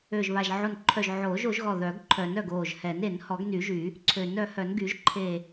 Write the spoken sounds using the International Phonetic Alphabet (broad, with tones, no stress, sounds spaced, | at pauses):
ø˧˩ ʒ β a˧˩ ʒ ʕ o˧˩ n ǃʰ œ˧˩ ʒ ʕ oː˨˩˦ ʒ o˨˩˦ ʒ ɣ ɔ˧˩ ð œ˨˩˦ ɡ ǃʰ œ˨˩˦ n œ˧˩ ɡ oː˧˩ ʒ h ɛ˨˩˦ n e˨˩˦ n h ɔ˨˩˦ ɡ n y˨˩˦ ʒ y˨˩˦ | ǀʰ ø˨˩˦ n œ˨˩˦ h œ˨˩˦ n ɡ y˨˩˦ ʒ ǃʰ e˧˩